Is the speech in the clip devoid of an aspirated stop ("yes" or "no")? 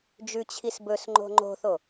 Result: no